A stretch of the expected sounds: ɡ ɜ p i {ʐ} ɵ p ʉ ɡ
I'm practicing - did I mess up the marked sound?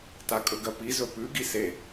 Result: yes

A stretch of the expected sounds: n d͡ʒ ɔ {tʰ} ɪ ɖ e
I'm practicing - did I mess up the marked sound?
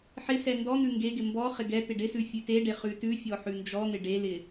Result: yes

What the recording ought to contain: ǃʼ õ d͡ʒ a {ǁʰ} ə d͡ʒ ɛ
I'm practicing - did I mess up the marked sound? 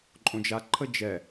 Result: yes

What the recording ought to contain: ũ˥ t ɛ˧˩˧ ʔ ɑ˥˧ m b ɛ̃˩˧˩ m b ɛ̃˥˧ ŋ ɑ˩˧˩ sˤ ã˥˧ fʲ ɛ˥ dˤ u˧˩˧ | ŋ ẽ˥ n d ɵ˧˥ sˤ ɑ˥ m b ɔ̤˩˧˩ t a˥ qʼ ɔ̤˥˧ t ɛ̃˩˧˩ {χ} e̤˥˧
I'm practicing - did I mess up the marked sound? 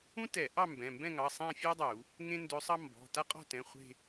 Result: yes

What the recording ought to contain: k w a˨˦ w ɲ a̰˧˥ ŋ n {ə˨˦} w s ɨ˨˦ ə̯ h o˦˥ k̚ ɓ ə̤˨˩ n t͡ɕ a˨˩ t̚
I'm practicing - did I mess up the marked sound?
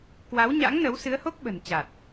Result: no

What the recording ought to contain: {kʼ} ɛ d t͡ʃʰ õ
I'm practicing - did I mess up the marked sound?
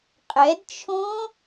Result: yes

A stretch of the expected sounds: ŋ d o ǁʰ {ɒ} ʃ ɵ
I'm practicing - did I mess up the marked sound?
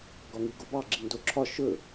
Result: no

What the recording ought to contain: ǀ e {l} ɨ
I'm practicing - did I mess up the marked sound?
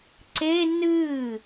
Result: yes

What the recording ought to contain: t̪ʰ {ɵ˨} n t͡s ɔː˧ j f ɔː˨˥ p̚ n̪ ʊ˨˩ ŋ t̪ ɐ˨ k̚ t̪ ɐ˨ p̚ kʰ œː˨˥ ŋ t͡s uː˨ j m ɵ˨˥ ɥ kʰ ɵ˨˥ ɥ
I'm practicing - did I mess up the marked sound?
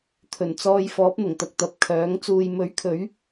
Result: yes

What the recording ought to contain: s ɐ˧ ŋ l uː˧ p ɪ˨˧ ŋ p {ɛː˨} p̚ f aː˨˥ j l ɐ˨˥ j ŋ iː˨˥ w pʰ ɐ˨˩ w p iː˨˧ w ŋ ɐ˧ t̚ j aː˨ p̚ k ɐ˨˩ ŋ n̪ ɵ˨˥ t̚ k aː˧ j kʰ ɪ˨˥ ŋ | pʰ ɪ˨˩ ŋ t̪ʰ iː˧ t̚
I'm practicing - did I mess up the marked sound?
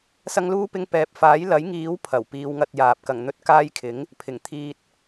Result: no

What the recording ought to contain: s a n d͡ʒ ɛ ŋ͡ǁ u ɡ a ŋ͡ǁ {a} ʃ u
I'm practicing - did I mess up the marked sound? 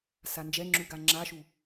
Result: no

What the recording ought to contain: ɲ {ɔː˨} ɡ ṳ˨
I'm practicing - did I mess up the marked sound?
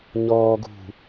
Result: no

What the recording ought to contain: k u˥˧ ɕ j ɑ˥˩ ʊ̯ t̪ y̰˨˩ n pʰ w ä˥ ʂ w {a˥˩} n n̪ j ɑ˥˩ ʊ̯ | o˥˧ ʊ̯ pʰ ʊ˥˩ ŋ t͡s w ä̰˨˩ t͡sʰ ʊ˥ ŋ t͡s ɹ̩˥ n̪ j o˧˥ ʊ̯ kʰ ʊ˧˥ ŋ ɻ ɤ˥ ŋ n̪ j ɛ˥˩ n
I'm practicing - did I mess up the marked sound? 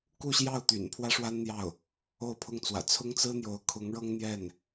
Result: yes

